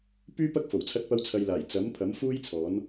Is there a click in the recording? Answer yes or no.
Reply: no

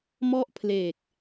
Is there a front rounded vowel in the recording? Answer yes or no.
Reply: no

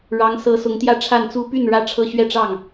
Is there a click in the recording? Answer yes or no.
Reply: no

